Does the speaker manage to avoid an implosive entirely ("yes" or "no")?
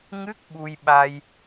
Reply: no